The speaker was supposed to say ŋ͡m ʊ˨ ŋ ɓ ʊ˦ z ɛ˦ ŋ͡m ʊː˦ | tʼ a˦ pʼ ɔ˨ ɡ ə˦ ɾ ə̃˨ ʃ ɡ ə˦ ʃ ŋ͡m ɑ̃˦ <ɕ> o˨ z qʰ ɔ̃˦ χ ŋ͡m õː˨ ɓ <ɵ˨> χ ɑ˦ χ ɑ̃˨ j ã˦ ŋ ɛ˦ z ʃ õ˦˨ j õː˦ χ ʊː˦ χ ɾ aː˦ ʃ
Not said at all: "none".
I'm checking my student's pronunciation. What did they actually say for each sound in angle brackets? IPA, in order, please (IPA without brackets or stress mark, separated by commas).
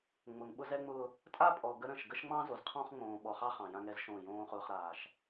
z, ɔ˨